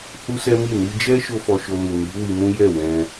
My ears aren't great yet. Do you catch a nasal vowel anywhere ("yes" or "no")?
yes